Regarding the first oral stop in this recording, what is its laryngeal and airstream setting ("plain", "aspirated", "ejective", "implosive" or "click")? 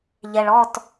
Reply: plain